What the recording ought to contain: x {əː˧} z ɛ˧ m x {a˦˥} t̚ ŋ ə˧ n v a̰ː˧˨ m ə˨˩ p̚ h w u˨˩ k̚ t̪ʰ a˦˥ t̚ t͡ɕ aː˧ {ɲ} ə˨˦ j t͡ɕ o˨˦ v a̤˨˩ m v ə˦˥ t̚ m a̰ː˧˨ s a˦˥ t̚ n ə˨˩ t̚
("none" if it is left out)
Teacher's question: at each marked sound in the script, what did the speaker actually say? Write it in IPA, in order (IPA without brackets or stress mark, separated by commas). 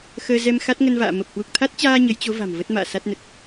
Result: əː˧, a˦˥, ɲ